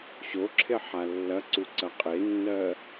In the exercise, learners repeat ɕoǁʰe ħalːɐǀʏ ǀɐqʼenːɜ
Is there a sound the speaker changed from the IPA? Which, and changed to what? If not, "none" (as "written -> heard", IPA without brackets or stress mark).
ʏ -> u